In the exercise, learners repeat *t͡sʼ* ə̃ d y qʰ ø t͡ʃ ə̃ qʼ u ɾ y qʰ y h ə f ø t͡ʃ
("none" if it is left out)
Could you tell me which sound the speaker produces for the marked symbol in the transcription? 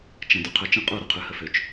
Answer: t͡ʃ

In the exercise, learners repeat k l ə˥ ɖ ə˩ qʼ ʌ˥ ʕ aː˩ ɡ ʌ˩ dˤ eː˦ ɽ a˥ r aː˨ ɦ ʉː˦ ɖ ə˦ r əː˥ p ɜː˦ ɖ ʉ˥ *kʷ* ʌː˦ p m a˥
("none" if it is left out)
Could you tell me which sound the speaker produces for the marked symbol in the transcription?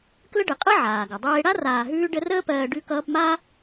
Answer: k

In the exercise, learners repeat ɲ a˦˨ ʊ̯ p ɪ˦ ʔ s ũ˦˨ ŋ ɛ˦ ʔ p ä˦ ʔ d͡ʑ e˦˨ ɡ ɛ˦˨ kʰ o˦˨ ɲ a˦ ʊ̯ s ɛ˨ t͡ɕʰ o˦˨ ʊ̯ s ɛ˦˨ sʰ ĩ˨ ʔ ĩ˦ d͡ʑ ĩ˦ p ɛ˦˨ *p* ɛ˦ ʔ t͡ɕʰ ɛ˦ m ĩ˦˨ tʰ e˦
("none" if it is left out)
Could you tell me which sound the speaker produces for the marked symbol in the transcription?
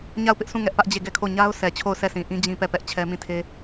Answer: p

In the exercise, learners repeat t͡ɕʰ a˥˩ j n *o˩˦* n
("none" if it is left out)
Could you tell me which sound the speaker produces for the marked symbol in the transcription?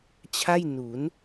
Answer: u˩˦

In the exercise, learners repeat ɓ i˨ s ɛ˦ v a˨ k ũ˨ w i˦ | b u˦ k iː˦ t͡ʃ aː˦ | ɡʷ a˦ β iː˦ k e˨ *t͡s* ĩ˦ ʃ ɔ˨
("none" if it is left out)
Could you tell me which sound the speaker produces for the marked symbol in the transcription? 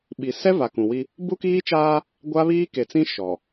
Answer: t͡s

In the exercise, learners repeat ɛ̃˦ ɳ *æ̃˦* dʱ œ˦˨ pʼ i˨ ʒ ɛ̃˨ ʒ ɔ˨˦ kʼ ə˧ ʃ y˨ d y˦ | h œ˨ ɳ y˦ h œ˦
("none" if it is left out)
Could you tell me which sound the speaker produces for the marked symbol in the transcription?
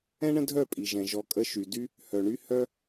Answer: ə̃˦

